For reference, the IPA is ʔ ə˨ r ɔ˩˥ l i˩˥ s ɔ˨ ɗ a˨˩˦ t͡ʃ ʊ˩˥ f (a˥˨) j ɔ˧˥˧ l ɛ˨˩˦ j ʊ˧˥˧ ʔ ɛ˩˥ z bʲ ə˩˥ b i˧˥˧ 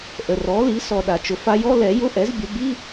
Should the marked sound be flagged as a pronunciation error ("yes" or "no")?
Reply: yes